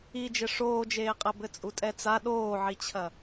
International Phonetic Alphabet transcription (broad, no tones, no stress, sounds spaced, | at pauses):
i d͡ʒ ɘ ʂ oː d͡ʒ eː qʼ ɛ b ɘ t͡sʼ u tʼ ɛ t͡s a ɗ oː ʕ i t͡ɕʰ ɐ